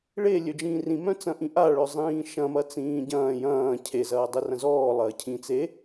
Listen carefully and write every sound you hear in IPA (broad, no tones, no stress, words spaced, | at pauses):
ɭe lʲød͡ʒĩːrĩ mœ̃t͡sɐ̃ʔĩʔa ɭœzˤĩːʃɐ̃ mɐt͡sĩːɟɐ̃ː jɐ̃ː cʰe zɐːdˤerɐ̃zɔː lˠɐːcʰĩ t͡se